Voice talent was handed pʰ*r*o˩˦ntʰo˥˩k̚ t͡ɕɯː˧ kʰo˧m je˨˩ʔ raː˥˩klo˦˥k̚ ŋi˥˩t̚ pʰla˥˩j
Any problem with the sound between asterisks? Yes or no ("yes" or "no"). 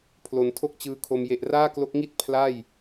yes